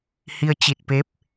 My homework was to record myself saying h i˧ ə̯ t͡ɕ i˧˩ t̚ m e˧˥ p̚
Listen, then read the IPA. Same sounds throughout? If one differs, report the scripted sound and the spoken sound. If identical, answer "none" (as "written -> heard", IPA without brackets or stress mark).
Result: m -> p